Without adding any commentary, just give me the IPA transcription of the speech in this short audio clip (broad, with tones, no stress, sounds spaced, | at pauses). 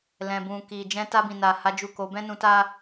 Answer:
l ɛ̃˨ b ũ˨ k i˨ d͡ʒ ɛ̃˧ t a˧ b ĩ˨ n a˨ h a˨˦ d͡ʒ u˦˨ k o˨˦ b ɛ̃˦ n ũ˧ t a˦